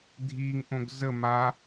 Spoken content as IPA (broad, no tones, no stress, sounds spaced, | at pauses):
dʱ i ŋ ʔ õ ɡ z ə m a